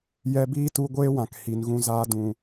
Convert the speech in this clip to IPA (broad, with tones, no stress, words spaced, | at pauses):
jɛ˧biː˦tu˧ ɡʷeː˦wã˨k hi˨nɣũ˧ zaː˧dũ˨